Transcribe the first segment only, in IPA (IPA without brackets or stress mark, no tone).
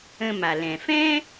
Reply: ə̃